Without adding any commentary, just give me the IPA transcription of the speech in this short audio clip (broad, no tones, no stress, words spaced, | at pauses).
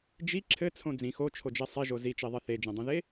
d͡ʒi ǁʰɘt͡sʰõ d͡zĩ xot͡ʃʰod͡ʒe sˤiʒo zit͡ʃiðˤɘ θed͡ʒẽdˤĩðe